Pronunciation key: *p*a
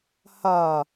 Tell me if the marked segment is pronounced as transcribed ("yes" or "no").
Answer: no